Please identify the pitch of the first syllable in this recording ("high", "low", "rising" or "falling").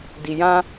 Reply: low